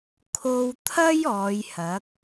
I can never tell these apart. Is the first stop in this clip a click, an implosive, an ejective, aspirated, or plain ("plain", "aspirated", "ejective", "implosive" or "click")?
aspirated